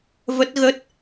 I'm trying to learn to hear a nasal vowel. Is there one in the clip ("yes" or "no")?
no